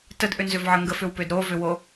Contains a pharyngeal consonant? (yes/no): yes